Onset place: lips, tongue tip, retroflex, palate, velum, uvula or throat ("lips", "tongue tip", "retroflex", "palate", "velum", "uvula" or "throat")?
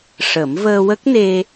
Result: retroflex